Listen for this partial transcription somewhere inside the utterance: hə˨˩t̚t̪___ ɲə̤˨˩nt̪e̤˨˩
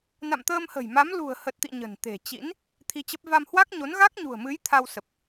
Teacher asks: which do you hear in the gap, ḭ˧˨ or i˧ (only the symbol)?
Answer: ḭ˧˨